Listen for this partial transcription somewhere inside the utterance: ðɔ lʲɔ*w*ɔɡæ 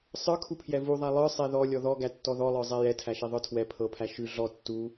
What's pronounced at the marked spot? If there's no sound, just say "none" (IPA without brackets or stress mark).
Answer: ð